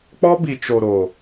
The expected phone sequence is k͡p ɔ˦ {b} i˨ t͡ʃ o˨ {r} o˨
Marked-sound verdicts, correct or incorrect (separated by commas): correct, incorrect